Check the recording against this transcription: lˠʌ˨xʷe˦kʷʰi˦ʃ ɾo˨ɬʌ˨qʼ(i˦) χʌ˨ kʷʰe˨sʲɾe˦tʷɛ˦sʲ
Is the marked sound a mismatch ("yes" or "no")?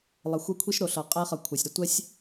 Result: yes